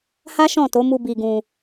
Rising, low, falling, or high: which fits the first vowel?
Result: high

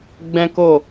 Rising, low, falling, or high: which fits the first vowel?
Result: high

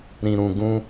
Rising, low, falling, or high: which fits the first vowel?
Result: low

